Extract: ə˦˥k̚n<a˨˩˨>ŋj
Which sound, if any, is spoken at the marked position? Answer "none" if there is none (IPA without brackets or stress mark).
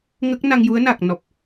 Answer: a˧